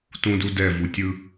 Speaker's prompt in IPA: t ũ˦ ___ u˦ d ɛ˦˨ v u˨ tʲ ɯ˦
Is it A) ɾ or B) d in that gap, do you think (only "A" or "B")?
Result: B